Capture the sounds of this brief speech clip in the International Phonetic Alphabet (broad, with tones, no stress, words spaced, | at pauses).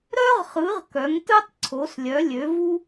ɾœ˥ʁχɯ˨˦ʁ kœ˨˦ŋtɯ˥tˤ ǀʰo˨˦slʲœ˨˦ lʲø˨˦vu˥